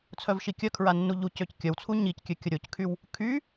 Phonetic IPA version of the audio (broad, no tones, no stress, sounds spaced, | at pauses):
t͡sʰ œ v ʃ i kʲ œ kʰ ɹ a nː u ʎ u c ø c kʲ œ w t͡sʰ u ɲ i c kʲ ø kʲ ə ɾʲ o c kʰ y w | kʰ y